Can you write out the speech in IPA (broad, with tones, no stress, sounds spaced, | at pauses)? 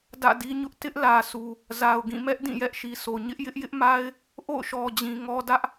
d ä̰˦˨ d i˦ ɲ ʊ˦ ʔ t ɪ˦ ʔ l ä˨ s u˨ | z a˨ ʊ̯ ɡ ĩ˦˨ m ɛ˦ ʔ d ĩ˦˨ j ɛ˦ ʔ ʃ i˨ sʰ o˨ ɲ ɪ˦ ʔ j ɪ˦ ʔ j ɪ˦ ʔ m a˦ ɪ̯ | ʔ o̰˦˨ ʊ̯ ʃ ɔ˨ d͡ʑ ĩ˨ ŋ ɔ˦ d ä˦ ʔ